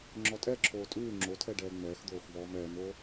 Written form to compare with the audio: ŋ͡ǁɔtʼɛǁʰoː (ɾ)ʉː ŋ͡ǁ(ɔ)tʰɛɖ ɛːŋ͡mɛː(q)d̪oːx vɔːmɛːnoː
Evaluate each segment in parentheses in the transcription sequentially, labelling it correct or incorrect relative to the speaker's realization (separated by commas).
incorrect, incorrect, incorrect